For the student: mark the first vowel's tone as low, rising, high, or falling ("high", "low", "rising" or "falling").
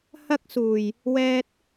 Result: high